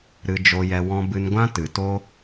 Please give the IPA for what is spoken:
ɾ ɨ˧ d͡ʒ o˧ j ɛ˧ w ɔ̃˧ b ɨ˧ n ɡʷ ã˦ t ɨ˨ t oː˦

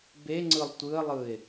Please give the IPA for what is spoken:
b e ŋ͡ǀ ɯ lˠ tʷ ɯ ə̯ lˠ ɯ ɪ̯

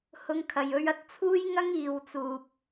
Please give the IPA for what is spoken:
h ʊ˧ ŋ kʰ ɐ˨ j ɵ˧ ɥ ɐ˧ t̚ t͡sʰ uː˥ j ŋ ɐ˥ ŋ iː˨ w t͡s uː˨ p̚

